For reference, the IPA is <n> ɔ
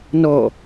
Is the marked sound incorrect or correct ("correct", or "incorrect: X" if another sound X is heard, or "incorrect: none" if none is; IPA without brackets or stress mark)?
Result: correct